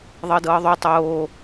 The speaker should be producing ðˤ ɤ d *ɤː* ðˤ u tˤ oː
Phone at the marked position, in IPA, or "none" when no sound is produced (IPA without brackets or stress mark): ɤː